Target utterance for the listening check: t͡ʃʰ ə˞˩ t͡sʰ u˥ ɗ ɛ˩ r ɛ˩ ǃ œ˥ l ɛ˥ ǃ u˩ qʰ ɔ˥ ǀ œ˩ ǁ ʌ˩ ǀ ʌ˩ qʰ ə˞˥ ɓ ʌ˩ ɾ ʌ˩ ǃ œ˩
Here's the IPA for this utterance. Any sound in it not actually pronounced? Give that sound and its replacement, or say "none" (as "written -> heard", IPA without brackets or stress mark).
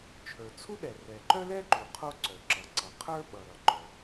ɔ˥ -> o˥